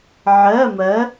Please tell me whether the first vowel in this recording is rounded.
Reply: no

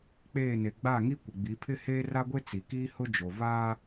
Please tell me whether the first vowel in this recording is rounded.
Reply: no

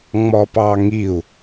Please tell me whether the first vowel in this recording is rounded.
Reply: yes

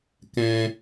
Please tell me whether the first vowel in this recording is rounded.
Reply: no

